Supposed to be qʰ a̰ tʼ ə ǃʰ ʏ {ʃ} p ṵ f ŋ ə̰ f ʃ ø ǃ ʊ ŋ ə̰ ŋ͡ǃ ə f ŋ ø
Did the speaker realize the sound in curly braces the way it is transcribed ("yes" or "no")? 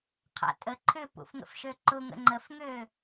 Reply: no